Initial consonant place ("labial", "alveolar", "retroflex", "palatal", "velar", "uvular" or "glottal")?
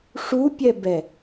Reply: retroflex